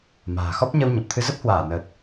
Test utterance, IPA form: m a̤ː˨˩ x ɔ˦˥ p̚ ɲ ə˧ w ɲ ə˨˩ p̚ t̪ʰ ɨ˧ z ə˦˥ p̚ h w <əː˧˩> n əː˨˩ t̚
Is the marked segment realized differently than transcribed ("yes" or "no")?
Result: yes